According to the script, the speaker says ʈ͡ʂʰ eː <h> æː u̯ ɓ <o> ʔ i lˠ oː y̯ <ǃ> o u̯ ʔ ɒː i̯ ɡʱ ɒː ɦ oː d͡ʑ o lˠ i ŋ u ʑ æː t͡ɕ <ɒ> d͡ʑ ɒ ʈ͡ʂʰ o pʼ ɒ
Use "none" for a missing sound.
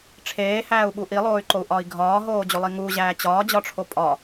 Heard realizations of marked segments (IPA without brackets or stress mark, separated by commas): h, u, ǃ, ɒː